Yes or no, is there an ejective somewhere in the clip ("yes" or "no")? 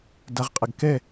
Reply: yes